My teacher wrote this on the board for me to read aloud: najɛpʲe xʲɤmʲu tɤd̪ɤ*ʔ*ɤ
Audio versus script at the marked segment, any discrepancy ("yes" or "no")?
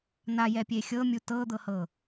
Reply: yes